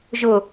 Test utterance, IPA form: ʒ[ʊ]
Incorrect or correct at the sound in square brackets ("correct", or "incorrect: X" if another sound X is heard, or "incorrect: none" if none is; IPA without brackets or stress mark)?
correct